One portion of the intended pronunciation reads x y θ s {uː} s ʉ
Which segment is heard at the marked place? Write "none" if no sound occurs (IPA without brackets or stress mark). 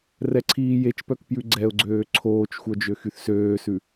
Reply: øː